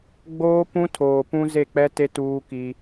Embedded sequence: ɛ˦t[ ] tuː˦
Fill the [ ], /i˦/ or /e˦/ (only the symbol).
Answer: e˦